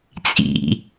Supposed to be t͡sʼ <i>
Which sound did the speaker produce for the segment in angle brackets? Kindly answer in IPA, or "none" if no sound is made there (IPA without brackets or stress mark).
ḭ